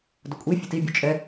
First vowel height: mid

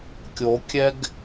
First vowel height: mid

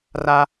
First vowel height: low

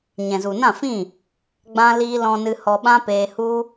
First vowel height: mid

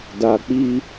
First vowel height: low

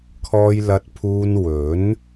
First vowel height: mid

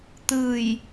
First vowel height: high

